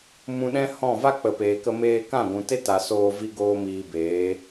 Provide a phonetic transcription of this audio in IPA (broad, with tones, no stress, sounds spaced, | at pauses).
m ũ˧ ɗ ɛ̃˦ h ɔ̃˦˨ v a˦ k͡p ə˨ p eː˨ k ə˧ m eː˧ k ã˦˨ ɡʷ ũ˨ t e˦ t a˨ s oː˧ v i˦ ɡ oː˦ m iː˧ b eː˨˦